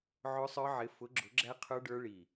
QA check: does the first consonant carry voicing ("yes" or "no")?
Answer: yes